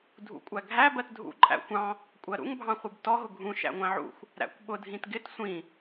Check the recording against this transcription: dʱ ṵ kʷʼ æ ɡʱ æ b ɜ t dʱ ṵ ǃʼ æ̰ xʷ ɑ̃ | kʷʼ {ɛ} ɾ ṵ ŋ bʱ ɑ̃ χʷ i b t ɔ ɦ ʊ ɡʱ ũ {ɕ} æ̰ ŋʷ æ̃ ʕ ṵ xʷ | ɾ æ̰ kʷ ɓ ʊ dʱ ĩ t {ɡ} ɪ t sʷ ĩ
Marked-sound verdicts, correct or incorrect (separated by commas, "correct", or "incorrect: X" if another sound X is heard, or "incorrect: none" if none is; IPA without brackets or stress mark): incorrect: ɜ, incorrect: ʃ, correct